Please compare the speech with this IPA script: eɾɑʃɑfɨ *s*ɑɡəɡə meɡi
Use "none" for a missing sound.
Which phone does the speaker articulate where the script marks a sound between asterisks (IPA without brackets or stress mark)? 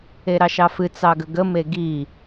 t͡s